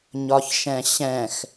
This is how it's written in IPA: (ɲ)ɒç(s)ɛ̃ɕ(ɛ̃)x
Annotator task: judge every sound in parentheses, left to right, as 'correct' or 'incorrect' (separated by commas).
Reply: correct, incorrect, correct